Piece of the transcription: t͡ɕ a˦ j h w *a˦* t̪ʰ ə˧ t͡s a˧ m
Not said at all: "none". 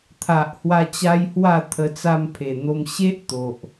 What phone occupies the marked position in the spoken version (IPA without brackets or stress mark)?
a˥˧